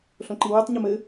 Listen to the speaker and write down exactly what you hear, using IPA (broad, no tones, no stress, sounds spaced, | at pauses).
ɬ õ ǃ i w ɛ tˤ ɲ ʊ m ɘ